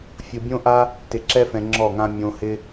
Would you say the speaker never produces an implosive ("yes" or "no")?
yes